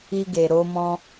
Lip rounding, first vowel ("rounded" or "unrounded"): unrounded